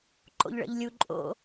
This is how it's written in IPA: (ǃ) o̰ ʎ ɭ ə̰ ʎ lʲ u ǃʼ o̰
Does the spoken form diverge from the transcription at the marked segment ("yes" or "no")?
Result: no